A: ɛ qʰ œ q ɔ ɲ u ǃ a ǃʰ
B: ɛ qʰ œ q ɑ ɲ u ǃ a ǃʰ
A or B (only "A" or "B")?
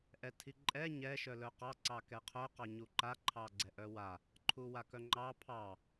B